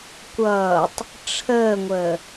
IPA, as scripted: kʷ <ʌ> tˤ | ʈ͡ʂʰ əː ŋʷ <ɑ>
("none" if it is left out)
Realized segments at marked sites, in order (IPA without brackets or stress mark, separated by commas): ʌː, ə